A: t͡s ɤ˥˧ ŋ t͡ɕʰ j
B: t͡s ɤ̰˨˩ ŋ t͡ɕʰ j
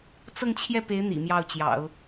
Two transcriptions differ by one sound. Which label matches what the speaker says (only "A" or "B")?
A